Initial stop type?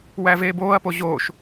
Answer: plain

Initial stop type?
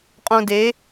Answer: ejective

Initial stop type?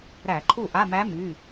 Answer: click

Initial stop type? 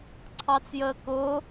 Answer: click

